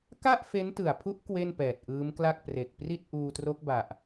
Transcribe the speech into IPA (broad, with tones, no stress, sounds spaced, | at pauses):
k a˥˩ ʔ f e˦˥ n t ɯ˨˩ a̯ pʰ u˦˥ ʔ k w e˥˩ n p ɛː˨˩ t̚ ʔ ɯː˦˥ m k l a˥˩ k̚ p r e˨˩ k̚ p r i˥˩ t̚ ʔ uː˧ t r o˦˥ k̚ b a˨˩ ʔ